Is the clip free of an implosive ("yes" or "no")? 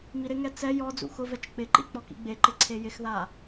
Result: yes